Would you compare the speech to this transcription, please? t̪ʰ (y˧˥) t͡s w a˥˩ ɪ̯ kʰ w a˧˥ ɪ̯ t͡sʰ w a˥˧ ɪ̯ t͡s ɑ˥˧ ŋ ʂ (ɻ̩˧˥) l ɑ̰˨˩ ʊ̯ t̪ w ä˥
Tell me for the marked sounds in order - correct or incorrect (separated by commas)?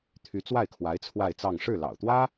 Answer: correct, incorrect